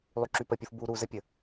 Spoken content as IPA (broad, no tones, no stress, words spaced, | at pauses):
lˠyǁypəpʲuf bu ɾuzəpʲə